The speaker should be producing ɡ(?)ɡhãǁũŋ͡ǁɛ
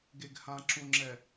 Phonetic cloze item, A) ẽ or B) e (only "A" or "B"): B